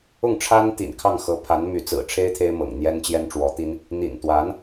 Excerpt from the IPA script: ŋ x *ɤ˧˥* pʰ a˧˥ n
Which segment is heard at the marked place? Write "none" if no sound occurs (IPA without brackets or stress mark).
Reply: ɤ˧˥